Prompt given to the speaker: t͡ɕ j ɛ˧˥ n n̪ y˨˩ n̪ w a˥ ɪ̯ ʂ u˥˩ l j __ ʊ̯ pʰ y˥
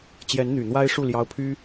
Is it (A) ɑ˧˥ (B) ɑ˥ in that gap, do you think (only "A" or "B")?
B